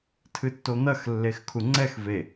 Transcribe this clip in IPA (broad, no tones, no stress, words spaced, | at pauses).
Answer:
tʰɨtːon̪ɐx lːexkʰuŋ͡ǀɛx ve